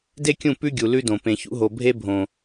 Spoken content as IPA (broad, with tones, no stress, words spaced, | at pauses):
de˦kʲũ˦˨ pʉ˦ ɡʲu˨lʉ˦dõ˨ pẽ˨çṵ˦ɦo˨ bʱe˦bʱõ˨